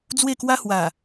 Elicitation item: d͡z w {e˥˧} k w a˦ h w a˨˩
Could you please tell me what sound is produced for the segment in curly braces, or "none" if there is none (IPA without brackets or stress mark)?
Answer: e˥˧